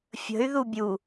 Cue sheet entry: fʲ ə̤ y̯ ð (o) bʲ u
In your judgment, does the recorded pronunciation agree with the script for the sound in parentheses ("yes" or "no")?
no